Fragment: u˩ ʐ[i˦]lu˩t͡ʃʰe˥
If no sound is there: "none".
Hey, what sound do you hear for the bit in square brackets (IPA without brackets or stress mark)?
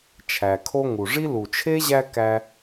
i˦